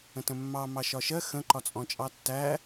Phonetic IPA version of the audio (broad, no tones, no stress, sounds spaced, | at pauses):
ə̃ t ə̃ mː ɑ m ɑ ʃ ɒ ʃ ɜ x ə̃ ǃ ɒ t͡sʼ ɔ̃ t͡ʃʼ ɑ tː æ